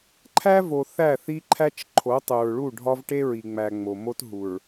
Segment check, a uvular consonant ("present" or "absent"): absent